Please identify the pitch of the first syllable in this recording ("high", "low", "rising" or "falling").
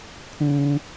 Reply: high